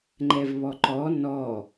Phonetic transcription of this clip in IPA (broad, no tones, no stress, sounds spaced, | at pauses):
ŋ͡ǃ ɛ v β ɔ ǃ ɔ n ɔ